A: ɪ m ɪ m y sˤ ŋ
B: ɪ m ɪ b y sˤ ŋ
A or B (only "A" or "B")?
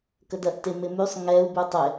A